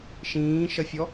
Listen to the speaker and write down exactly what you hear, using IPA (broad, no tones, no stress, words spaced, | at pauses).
ʃĩːʃʌfʲɔ